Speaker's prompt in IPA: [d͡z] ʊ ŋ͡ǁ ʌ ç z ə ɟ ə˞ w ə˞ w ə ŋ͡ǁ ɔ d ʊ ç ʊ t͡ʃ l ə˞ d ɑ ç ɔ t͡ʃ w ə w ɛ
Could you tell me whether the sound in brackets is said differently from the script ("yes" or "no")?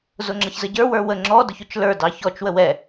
yes